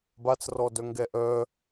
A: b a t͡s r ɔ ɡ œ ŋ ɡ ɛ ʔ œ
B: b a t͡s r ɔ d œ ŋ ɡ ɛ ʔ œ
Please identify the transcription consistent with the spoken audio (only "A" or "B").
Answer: B